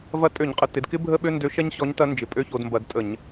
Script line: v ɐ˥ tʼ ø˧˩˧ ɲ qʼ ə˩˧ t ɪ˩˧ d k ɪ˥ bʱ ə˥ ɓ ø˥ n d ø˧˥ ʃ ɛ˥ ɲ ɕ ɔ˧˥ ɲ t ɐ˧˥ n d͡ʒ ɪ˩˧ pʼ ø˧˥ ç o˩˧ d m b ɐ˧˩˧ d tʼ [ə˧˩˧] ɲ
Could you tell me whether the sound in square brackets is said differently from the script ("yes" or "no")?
no